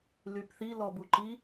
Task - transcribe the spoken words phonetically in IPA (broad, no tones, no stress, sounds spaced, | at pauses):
l y p θ i l ɔ b u ǃ i